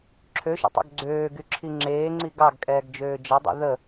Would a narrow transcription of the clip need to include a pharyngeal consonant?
no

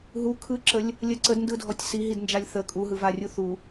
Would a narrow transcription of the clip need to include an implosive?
no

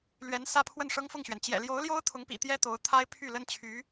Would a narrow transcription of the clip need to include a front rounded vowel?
yes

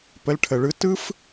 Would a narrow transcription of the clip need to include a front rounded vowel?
no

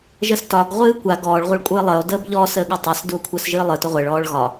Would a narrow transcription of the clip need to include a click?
no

